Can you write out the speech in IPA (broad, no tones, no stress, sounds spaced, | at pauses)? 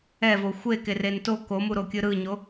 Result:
ɛ v o xʷ e k e r e n t o k o m u ɾ o kʲ ɯ ɾ ɯ ɲ o